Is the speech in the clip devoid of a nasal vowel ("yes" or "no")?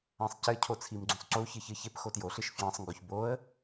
no